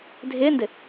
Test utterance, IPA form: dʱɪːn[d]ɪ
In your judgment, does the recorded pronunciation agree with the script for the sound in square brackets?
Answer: yes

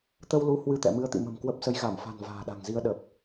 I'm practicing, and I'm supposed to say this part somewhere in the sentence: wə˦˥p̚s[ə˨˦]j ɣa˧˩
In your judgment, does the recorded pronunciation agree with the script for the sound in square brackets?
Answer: yes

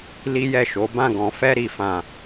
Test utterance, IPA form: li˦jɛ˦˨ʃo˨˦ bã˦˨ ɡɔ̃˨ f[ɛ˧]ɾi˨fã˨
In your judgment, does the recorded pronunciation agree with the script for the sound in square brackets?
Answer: yes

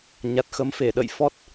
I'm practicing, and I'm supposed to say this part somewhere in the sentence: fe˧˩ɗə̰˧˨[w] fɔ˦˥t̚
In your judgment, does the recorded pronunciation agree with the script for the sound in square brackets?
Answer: no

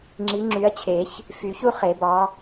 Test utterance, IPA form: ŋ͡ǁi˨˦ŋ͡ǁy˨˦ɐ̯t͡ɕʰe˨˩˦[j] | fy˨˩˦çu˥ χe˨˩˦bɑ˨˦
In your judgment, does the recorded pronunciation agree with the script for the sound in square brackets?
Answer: no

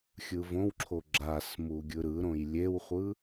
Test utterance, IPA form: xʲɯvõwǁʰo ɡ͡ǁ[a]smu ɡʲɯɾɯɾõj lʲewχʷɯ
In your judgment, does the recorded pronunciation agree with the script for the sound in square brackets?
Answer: yes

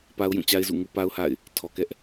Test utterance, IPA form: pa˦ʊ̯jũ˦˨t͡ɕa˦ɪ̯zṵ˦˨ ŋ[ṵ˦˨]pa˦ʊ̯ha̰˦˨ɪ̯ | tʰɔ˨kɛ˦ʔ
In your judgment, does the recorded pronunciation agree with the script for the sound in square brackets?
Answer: no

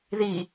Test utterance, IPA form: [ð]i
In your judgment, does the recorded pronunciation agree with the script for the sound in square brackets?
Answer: yes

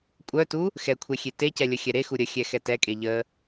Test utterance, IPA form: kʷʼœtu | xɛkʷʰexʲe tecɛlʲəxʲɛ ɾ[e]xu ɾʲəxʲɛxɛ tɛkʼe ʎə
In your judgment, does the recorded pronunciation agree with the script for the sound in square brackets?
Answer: yes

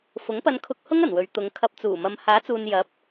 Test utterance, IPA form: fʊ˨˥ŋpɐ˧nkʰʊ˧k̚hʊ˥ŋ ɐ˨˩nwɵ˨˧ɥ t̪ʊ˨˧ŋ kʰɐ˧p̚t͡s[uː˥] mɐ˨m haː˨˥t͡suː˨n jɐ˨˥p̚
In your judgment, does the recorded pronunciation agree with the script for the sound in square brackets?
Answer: no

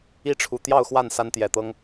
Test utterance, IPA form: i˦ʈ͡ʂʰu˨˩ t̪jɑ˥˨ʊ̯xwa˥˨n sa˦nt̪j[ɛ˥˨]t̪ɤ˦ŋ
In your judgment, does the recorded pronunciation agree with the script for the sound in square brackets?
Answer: no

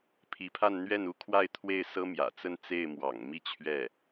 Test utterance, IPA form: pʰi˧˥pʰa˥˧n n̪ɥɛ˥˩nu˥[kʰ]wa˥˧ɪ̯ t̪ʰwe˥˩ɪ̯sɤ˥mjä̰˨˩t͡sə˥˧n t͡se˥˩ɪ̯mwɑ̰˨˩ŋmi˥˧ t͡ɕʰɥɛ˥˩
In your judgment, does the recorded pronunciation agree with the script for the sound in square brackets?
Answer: yes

